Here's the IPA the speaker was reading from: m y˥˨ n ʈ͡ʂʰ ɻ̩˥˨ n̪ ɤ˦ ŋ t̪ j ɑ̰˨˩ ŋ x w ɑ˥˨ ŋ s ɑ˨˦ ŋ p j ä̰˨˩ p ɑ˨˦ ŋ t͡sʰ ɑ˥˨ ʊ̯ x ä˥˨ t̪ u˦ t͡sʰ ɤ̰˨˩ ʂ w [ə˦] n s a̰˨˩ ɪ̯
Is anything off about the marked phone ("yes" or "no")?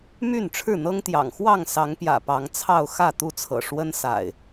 no